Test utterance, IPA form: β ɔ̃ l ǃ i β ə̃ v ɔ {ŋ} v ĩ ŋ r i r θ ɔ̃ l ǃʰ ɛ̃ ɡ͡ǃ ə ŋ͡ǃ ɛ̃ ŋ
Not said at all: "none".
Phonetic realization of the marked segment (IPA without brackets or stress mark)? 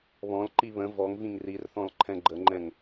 ŋ